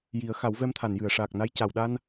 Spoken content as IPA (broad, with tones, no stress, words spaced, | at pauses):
ji˨˩˦ə̯ xa˨˩˦wvɛ˧mt̪ʰa˨˩˨njɨ˨˩˨ə̯ ʂaː˨˩k̚na˧j ca˨˩˨wɗa˧n